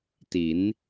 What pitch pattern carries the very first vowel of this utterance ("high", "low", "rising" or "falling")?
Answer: rising